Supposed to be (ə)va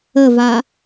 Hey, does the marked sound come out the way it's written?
yes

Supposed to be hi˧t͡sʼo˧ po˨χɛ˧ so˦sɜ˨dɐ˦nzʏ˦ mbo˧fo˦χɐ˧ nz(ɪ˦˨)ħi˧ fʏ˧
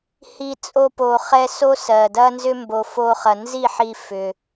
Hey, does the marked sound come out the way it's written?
no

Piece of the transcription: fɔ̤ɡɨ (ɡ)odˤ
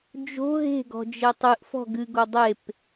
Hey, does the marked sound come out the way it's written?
yes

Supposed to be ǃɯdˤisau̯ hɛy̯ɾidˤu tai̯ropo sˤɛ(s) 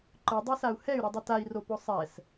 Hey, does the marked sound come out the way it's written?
yes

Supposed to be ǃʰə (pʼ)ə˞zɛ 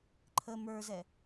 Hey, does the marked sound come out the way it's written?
no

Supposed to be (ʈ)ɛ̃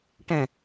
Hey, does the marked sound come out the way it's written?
yes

